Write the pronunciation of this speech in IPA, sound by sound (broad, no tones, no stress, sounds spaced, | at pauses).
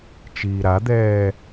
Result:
t͡ʃ iː ɾ a d̪ ɛː